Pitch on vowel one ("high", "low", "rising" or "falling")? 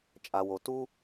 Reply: low